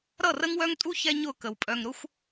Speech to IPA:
ɾ ʌ˦˨ r ə˦ ŋ w œ˦ ŋ tʼ u˦ ç ɛ˦ ɲ ʊ˦˨ k ə˨ w pʼ œ˨ ŋ ɾ ʊ˦ xʷ

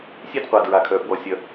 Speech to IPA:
sʲ e˥ d qʷ a˩ d ɹ a˩ kʰ œ˩ f w ɔ˩ sʲ œ˩

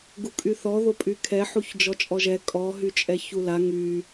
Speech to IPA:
ɡ u kʼ y θ ɔ ð o pʼ y kʰ ɛ ħ u ç d͡ʒ ɔ t͡ʃʼ ɔ ʒ ɛ kʼ ɔ ɦ y t͡ʃʼ ɛ ç u l a ŋ y

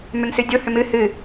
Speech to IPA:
m ʏ ŋ s ɨ dʲ o h ʏ m ɨ h ɨ

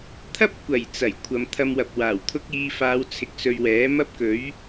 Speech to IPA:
t̪ʰ ɐ˥ p̚ kʷ ɐ˨˩ j t͡s ɐ˨˩ j kʷʰ ɐ˨ m t̪ʰ ɐ˧ m w ɐ˨ p̚ w aː˨˩ w t̪ʰ ʊ˥ k̚ iː˧ f aː˨˧ w t͡sʰ ɪ˨ k̚ s ɵ˧ ɥ w ɛː˨˥ m ɐ˥ p̚ k ɵ˨˥ ɥ

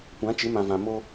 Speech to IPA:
kʷ ã˨˦ t͡ʃ ɪ˨˦ m ã˨ v ã˨ m o˦

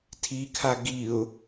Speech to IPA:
tʰ i kʰ a ɡ i ʊ̯

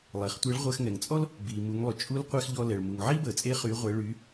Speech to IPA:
lˠ e˩ χ tʷ e˧˥ ɭ ʁʷ əː˧ x ŋ ɛ˩ ŋ t͡sʼ ɔ˥ l | b iː˩ m u˩˧ ŋ lˠ y˩ t͡ʃʼ u˧˥ l qʷ ɛ˧ x ʎ ɔ˧ l ɛ˩ ɭ m u˩ ŋ ʕ i˥ b əː˩ t͡sʼ e˧˥ χ y˩˧ ʁʷ ɛ˩˧ ɭ y˩˧

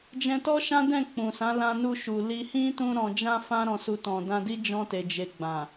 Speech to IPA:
d͡ʒ ɛ̃˧ t ɔ˦ ʃ ã˦ d ɛ̃˦˨ k͡p ũ˨ s ã˨˦ l ã˧ n u˧ ʃ u˨ l i˧ h ĩ˦ t ũ˦ ɾ ɔ̃˧ d͡ʒ ã˦ f ã˦ ɾ ɔ̃˧ s u˧ t ɔ̃˨ d ã˧ d i˦ d͡ʒ ɔ̃˧ t e˨ d͡ʒ e˨ ɡ͡b ã˨

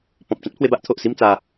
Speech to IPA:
p ɔ̃˨ p̚ t͡ɕ ã˦ t̚ pʰ w e˧ b a˦ ʔ t̪ʰ o˨ ʔ s i˥˧ m t͡s a˧

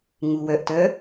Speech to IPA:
ŋ u w œ ʔ t œ

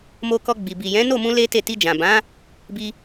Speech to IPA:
m o˧ k ɔ˧ ɡ͡b i˨ b i˨ j ɛ̃˨˦ n o˦˨ m ũ˧ l e˦ t e˦˨ t i˧ d͡ʒ ã˨ b ã˨˦ | b i˧

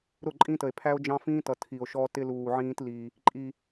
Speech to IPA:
ɾ ʊ˦˨ ǃʼ ĩ˦ t ə˨ e̯ pʰ æ˦ o̯ d͡ʒ ɑ̃˦ f ĩː˦ t ʌ˨ tʰ i˨ o̯ ʃ ɔ˦ t ɪ˦ l uː˨ ʕ ĩː˦ t l i˦ | ǃʼ i˦

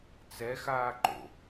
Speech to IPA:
t͡s ɛ x aː ǃ o̰

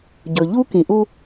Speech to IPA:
ɟ ɵ˨ ʎ u˦ k ĩ˨ ʔ u˦

